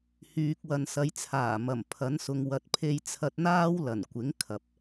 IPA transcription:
h yː˨ k̚ w ɐ˨ n s ɐ˨˧ j t͡sʰ aː˨˩ m ɐ˨˩ m pʰ ɐ˨˥ n s ʊ˨ ŋ w ɐ˨ t̚ pʰ e˧ j t͡sʰ ɐ˧ t̚ n̪ aː˥ w l ɐ˨˩ n kʷ ɪ˨˥ ŋ kʰ ɐ˨ p̚

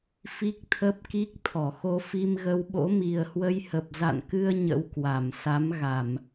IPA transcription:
f i˦˥ k̚ t̪ʰ ə˦˥ p̚ k i˦˥ k̚ t̪ʰ ɔ˧˩ x o˧ f i˧ m ɣ ə˧ w ɓ o̰˧˥ m i˨˩ ə̯ h w ə˧ j h ə˨˩ p̚ z a̰˧˨ n k ɨ˧ ə̯ ɲ ə̰˧˥ w k w a˧˩ m s a˨˦ m ɣ a˧˩˨ m

